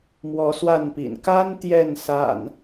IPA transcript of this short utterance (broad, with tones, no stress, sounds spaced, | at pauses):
m w ɔ˨˦ s w a˥˨ n p ḭ˨˩ n k a˦ n t̪ j ɛ˥˨ n s a̰˨˩ n